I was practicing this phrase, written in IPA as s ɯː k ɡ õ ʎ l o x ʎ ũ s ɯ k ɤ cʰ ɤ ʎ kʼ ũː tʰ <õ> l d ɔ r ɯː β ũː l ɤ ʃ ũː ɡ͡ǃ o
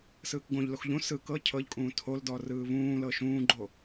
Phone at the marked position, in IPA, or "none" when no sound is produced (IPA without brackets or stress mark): o